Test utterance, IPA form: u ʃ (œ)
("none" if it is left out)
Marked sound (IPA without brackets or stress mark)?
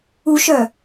œ